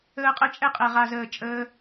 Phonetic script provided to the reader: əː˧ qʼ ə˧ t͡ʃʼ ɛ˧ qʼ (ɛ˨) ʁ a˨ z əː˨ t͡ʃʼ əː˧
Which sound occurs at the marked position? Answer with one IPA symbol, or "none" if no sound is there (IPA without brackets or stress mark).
ɛ˨